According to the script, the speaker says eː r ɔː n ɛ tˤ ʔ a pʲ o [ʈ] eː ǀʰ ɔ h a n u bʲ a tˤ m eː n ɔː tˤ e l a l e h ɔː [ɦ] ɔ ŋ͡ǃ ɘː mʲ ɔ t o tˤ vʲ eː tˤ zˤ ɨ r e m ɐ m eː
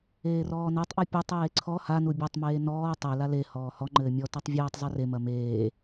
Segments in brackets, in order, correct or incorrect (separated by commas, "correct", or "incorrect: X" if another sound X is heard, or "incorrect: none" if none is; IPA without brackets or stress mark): incorrect: tˤ, incorrect: h